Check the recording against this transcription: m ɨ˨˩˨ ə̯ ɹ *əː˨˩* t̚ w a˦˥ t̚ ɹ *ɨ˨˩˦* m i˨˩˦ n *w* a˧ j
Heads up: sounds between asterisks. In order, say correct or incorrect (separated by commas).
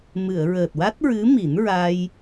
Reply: correct, incorrect, incorrect